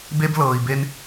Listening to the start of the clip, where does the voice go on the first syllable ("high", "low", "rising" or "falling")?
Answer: high